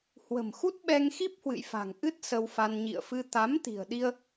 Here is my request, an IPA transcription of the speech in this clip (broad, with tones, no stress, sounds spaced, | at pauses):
h w ə̤˨˩ m x u˦˥ t̚ ɓ ɛ˧ ŋ x i˦˥ p̚ h w ɨ̰˧˨ j f a̤˨˩ ŋ ʔ ɨ˦˥ t̚ s ə˧ w f a˧ n ɲ ḭ˧˨ ə̯ f ɨ˧ t̪ a˨˦ m t̪ i̤˨˩ ə̯ ɗ i˧ ə̯